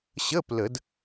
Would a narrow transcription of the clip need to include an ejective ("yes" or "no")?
no